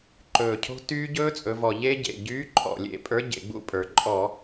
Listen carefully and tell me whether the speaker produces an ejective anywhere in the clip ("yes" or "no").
yes